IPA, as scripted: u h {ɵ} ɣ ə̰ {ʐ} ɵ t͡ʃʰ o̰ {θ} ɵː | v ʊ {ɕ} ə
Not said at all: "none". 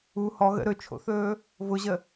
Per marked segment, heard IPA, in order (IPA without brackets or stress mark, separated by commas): ɔ, ɾ, θ, ʑ